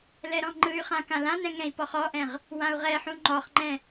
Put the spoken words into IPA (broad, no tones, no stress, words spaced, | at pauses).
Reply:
lɛɾɔ̃ŋ͡ǃɯy̯χã kãlãnɛ̃ ŋɛ̃i̯pɔχɔʔɛ̃ʁ | wãu̯ʁɛħũ ŋ͡ǃɔχŋ͡ǃɛ̃